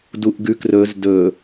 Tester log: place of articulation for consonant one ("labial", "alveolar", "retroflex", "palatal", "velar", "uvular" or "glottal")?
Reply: alveolar